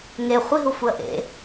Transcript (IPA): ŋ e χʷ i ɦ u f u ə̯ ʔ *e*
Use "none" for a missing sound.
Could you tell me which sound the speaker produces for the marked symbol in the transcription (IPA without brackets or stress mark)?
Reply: ḛ